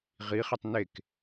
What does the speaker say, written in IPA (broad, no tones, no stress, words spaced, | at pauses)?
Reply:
ʁiχetˤ nek